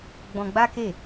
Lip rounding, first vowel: rounded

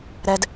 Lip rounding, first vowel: unrounded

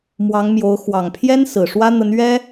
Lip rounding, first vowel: unrounded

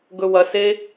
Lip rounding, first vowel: rounded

